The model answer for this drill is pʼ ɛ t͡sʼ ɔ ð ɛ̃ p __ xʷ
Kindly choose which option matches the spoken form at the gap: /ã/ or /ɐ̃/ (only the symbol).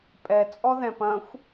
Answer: ɐ̃